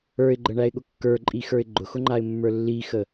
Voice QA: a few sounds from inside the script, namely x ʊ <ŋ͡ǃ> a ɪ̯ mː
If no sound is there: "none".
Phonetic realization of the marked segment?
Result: ŋ͡ǃ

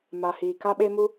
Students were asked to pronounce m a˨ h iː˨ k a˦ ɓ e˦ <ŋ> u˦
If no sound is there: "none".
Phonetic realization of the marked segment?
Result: m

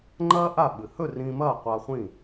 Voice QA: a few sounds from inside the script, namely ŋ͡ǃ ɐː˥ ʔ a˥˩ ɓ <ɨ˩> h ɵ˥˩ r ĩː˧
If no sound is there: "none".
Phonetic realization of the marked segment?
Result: ɨ˩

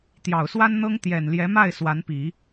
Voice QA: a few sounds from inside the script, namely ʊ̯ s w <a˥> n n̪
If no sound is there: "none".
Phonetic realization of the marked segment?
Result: a˥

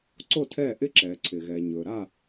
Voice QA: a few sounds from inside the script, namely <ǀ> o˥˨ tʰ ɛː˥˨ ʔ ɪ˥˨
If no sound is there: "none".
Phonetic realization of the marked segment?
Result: ǀ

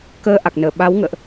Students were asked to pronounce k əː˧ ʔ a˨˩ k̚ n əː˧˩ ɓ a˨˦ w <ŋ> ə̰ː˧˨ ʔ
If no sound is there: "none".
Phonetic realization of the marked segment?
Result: ŋ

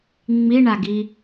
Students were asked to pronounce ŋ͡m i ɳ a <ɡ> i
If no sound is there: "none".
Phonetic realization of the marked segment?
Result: ɡ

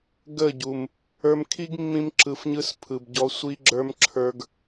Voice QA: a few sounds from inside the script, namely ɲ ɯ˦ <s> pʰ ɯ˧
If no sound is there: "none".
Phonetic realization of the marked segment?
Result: s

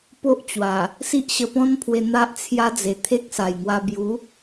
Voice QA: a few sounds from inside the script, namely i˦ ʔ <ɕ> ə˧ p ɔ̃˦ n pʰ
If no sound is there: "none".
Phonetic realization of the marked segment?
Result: ɕ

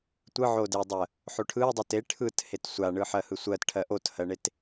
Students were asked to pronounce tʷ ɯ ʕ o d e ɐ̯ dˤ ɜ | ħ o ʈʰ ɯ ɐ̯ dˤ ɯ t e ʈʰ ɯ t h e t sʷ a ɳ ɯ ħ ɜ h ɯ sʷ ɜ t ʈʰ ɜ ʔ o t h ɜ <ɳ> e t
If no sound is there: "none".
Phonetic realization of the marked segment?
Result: ɳ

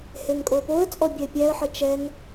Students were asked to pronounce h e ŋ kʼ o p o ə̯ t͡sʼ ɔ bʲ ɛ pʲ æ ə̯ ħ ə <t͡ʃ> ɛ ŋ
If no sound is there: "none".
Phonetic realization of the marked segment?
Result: t͡ʃ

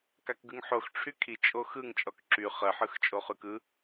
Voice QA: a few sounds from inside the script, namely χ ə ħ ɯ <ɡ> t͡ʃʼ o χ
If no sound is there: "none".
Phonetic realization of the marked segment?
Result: x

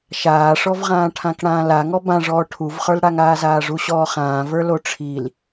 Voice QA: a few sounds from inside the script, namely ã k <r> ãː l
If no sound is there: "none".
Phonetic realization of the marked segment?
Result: ɽ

